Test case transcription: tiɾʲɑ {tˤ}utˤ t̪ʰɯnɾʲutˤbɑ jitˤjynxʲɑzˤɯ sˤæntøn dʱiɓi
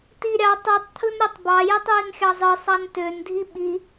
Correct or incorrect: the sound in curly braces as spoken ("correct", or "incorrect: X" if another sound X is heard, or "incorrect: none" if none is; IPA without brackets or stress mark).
correct